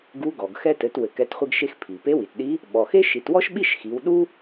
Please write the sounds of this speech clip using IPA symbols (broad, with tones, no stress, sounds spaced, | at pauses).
ɡ u˧˥ ɡ ɔ˩ ɡ x ɛ˧ t ɘ˩˧ t w ɘ˩ k ɛ˩˧ t χʷ ɘ˧ ɡ ʃ e˧ x pʰ i˩ p e˧˥ w i˩ t ɗ i˧˥ | ɓ ɔ˩ x e˥ ʃ i˩˧ t w ɔ˥ ʃ ɓ i˥ ʃ x i˩˧ w ɗ u˥